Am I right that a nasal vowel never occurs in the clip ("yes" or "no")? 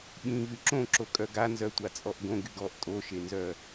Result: no